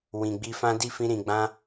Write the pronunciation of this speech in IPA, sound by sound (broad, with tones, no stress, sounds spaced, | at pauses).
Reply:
w ĩ˨ ɡ͡b i˧ f ã˦ d i˦˨ f ĩ˧ ɾ ĩ˨ ɡ͡b ã˧